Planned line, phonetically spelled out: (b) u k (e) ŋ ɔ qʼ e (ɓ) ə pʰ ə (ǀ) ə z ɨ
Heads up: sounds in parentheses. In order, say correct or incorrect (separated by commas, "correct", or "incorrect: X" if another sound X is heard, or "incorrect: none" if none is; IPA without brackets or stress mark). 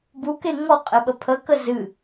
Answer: correct, correct, correct, incorrect: k